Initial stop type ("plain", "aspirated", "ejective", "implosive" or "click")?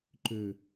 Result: click